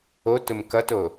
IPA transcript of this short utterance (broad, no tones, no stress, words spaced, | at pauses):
otʊm kʌto